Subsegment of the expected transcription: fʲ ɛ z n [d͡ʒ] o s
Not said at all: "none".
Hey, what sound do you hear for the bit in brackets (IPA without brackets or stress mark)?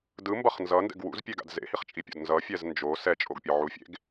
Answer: d͡ʒ